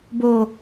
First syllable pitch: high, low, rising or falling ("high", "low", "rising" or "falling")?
low